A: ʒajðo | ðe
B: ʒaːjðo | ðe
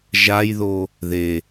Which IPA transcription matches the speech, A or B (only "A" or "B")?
A